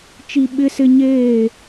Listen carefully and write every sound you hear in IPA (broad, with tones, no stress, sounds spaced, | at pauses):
t͡ʃ i˦ ɓ ɪ˦ s ɪ˦ ɲ eː˦˨